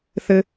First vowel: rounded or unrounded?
unrounded